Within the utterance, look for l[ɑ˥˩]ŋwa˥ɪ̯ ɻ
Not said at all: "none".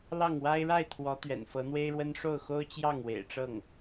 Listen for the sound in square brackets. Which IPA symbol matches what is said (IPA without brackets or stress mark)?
ɑ˥˩